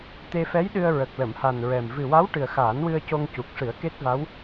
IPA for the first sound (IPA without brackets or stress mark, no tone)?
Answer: t̪